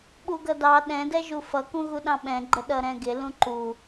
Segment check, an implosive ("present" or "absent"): present